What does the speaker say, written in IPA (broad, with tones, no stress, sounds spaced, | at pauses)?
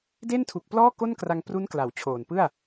d e˥˩ n tʰ u˨˩ k̚ p l ɔː˥˩ k o˥˩ n k r a˧ ŋ p r u˦˥ n k l a˩˦ w t͡ɕʰ oː˨˩ n p ɯ˥˩ a̯